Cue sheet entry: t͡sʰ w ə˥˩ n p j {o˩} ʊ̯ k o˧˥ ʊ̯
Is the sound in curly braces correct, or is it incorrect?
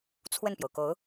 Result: correct